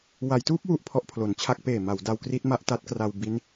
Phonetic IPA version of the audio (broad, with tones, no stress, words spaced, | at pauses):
wa˩˦jtuː˦˥p̚ wu˥˩ʔpʰɔ˦˥ʔpʰlo˩˦nt͡ɕʰa˦˥k̚ peː˨˩ma˩˦w da˧wkri˦˥t̚ma˥˩ʔ ta˦˥t̚kra˧w bi˦˥n